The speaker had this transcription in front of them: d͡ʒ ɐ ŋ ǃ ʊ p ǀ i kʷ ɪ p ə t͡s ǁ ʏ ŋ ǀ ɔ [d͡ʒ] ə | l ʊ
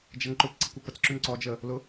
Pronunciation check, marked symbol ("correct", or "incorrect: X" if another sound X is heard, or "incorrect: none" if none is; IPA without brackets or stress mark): correct